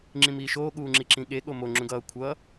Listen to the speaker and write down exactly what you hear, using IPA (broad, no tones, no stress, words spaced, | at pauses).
ŋ͡ǁĩmiːʃoː ɠuːŋ͡ǁiǁĩɠe ɠomo ŋ͡ǁũɡʌː kʷʰʌː